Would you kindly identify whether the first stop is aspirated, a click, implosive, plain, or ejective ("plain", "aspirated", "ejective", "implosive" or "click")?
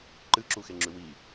click